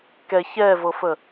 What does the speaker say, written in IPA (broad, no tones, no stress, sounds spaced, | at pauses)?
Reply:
k ɛ ç ɛ v ɤ f ə